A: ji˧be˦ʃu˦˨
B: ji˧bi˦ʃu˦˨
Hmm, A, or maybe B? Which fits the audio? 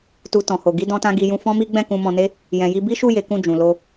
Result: B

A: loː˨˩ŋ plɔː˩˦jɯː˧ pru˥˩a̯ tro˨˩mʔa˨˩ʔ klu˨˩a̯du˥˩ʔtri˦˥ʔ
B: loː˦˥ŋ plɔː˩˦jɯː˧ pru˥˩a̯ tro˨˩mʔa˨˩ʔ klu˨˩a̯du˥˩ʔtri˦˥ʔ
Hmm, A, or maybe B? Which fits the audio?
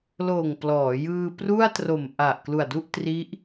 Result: A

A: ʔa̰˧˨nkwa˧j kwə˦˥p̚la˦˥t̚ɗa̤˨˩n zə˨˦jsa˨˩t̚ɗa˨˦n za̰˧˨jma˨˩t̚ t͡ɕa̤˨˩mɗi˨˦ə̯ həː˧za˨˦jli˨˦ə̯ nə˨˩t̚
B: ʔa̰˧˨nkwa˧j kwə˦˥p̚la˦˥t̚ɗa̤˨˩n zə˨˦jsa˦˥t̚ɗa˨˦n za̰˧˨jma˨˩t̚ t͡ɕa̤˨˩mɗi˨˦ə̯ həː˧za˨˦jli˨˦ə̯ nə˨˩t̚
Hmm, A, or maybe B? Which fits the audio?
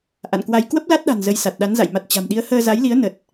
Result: A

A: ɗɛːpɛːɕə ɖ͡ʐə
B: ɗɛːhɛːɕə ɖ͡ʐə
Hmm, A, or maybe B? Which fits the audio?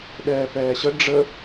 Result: A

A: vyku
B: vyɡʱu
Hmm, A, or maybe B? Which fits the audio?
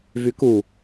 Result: A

